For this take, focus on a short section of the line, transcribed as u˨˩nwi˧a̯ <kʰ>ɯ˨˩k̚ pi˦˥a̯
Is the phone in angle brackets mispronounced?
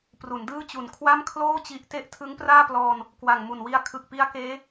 no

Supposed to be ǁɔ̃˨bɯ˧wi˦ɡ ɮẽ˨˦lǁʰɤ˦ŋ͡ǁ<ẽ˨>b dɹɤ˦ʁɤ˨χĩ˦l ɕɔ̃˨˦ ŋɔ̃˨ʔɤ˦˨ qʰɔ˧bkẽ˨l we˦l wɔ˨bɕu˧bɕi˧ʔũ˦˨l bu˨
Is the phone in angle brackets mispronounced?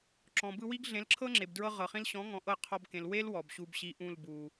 yes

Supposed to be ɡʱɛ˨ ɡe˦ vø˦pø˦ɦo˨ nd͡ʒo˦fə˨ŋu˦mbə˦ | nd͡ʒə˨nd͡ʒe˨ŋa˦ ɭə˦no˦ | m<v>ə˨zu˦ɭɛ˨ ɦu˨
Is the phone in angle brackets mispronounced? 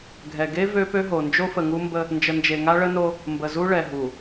yes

